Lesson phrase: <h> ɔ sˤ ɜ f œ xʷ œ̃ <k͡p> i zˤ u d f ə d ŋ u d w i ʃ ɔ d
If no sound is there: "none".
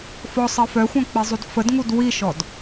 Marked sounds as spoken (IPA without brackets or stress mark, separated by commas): f, k͡p